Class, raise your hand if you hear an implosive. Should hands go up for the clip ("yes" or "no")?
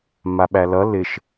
yes